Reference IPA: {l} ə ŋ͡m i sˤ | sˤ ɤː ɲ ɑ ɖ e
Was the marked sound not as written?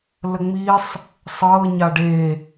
no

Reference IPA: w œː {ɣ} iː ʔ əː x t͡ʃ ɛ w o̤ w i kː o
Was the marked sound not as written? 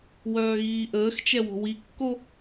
no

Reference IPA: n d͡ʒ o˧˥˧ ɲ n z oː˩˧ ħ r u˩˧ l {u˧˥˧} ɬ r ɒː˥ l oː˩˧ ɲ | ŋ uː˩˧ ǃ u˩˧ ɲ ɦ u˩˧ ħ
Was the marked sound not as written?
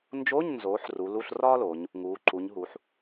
no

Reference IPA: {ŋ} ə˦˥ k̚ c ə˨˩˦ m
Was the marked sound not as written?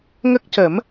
no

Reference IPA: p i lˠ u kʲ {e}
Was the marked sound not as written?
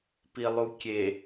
no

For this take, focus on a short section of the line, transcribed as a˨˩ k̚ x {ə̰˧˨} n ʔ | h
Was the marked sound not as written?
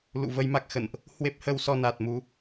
no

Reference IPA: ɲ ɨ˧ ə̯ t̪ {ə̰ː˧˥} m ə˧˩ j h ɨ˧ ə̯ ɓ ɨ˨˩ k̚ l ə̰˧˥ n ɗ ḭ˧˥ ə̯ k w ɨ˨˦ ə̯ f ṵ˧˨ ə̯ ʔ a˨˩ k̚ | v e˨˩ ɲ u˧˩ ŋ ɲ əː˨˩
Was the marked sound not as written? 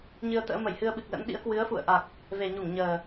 no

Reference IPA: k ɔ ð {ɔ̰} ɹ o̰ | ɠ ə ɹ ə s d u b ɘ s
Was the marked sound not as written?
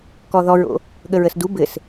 yes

